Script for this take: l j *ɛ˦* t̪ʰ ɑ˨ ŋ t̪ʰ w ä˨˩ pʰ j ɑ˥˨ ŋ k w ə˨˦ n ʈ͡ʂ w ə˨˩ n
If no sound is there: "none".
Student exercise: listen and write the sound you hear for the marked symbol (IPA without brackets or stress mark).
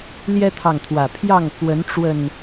ɛ˦